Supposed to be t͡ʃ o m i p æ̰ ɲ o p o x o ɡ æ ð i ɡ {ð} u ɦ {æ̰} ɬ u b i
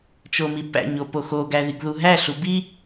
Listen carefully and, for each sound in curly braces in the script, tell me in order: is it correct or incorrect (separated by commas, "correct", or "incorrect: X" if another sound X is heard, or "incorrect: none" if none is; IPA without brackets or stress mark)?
correct, incorrect: æ